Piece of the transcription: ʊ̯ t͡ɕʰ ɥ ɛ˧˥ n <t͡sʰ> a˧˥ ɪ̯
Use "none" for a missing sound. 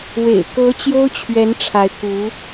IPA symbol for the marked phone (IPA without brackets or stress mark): ʈ͡ʂʰ